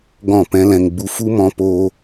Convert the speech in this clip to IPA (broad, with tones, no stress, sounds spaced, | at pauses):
ɡ ɔ̃˦˨ p ɛ̃˦ l ɛ̃˧ ŋ ɡ͡b u˧ f u˦ m ɔ̃˧ p oː˦